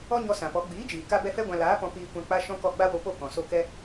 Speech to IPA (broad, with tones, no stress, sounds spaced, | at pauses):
ɔ˦ ɲ ɔ˧ s ã˨ p ɔ˨˦ ɡ͡b iː˨˦ d͡ʒ iː˨ k a˦ b ɛ˦ f ɛ˦ ɡʷ ã˧ l aː˨˦ p ɔ̃˧ p iː˧ kʷ ã˧ k͡p a˦ ʃ ɔ̃˦ k ɔ˦˨ ɡ͡b a˦ w o˧ p o˦˨ k ɔ̃˨ s o˦˨ k ɛ˦